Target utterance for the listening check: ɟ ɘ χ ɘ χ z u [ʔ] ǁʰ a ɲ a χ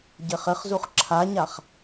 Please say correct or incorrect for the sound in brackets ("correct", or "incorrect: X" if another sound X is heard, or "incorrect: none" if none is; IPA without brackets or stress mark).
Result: incorrect: χ